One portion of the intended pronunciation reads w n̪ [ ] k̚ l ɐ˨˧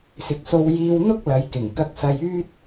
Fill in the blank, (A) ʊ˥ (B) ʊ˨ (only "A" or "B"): A